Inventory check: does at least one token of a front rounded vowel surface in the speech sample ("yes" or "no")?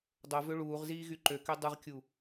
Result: yes